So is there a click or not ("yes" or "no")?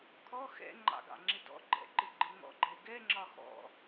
yes